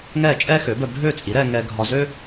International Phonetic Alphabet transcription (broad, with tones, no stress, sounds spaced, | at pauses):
ŋ ɛː˥˩ t͡ʃʼ ɛː˥ x ø˩˥ b œ˧ bʱ øː˥˩ t͡sʼ i˩˥ ɾ ɛː˧ ŋ ɛː˧ ɡʱ ɒ˧ z øː˥